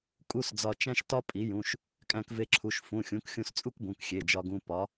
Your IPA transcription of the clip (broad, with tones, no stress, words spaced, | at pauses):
kʼu˧˥˧sd͡zɒ˧t͡ʃæ̃˥ʃ tɒ˥ pʼi˩˥jũ˩˧˩ʃ | kʼæ̃˧kve˧ǁʰu˩˧˩ʃ fũ˩˧˩xʲũ˩˥kxʲũ˧s t͡sʼu˥kbũ˩˧˩k xʲe˩˧˩d͡ʒɒ˧ɡũ˧ pɒ˩˥